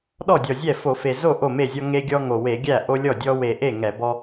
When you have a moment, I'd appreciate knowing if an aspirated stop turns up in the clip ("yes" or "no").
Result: no